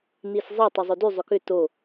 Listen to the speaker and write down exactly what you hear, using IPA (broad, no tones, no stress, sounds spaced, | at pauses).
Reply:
n i s zˤ ɛ tˤ ɵ zˤ o d y zˤ ʏ k ʏ t o